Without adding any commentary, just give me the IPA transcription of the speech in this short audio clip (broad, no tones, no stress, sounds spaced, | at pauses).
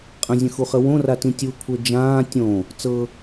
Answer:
qʼ ə̃ zʲ ə̃ x u χ ə w õ r a t ĩ tʲ u kʷʰ ɜ d͡ʒ ãː tʲ õ | t͡s ɤ